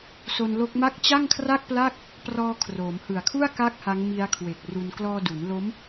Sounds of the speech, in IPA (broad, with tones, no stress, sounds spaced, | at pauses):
s o˧ n l o˦˥ k̚ m a˥˩ k̚ t͡ɕ a˥˩ ŋ kʰ r a˥˩ k̚ p l a˥˩ k̚ | p r ɔː˧ kʰ r oː˩˦ m h ɯ˨˩ a̯ kʰ u˥˩ a̯ k a˥˩ k̚ h a˦˥ ŋ m i˦˥ a̯ kʰ w e˨˩ k̚ r u˧ n k l ɔː˧ d u˩˦ n l o˦˥ m